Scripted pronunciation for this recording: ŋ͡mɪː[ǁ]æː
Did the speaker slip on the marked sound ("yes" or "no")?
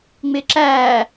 no